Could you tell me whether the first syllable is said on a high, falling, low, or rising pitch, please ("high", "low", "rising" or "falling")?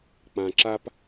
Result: low